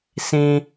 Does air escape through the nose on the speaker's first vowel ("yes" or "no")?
yes